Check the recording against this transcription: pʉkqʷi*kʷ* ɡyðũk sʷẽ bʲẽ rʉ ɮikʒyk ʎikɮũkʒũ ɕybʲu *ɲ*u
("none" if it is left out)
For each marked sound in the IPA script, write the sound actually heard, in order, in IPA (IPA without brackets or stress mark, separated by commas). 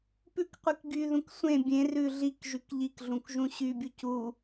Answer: k, c